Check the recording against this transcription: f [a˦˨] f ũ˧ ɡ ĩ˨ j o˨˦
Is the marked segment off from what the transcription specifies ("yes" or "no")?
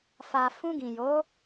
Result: yes